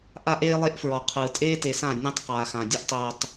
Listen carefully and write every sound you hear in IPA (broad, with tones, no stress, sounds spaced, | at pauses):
ʔ aː˦ ʔ eː˦ lˠ e˦ ʔ f ɹ ɔ˨ qʰ ɯ˨ tʼ eː˦ t e˨ s ã˦˨ nʲ ɔ̃˦ tˤ q aː˨ x ã˨ dʲ ɯ˦ ʔ tˤ oː˨ tˤ